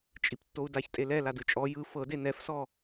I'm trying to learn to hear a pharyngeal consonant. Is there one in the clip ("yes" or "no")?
no